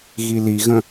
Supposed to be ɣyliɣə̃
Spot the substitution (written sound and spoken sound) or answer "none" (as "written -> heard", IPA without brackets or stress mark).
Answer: y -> i